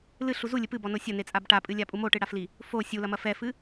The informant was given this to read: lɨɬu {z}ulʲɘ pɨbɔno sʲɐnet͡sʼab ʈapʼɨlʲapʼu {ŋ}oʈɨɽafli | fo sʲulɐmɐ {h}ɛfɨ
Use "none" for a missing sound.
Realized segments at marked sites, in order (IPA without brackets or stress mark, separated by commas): z, m, f